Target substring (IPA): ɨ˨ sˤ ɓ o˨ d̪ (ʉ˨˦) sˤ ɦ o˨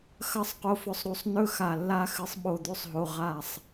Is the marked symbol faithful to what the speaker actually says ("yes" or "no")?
no